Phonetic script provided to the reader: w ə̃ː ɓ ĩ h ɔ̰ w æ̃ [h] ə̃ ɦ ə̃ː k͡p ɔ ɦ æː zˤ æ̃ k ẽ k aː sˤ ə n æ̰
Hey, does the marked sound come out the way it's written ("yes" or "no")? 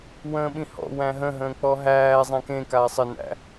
no